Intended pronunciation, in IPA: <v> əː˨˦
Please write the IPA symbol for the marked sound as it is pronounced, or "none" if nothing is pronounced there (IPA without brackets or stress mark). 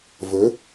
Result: v